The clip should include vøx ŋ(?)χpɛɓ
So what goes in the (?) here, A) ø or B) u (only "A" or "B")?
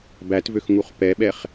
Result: B